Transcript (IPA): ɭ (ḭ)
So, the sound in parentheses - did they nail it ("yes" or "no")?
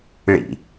yes